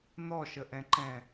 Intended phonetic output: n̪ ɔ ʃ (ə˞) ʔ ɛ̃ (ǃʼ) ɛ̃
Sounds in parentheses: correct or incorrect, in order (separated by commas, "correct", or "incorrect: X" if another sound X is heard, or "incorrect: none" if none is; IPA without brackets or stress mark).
incorrect: ə, incorrect: ǃ